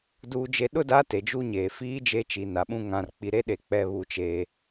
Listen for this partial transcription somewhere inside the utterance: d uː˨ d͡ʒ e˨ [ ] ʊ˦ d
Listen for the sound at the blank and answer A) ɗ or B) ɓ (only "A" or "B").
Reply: A